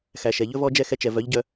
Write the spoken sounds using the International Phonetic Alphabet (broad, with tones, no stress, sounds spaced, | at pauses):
x æ˨ ʃ ɛ˨ ʎ ɵ˦ v ɔ˦ d͡ʒ ɛ˦˨ x ɛ˧ t͡ʃ ɛ˨ v œ˨˦ ʎ ɟ œ˧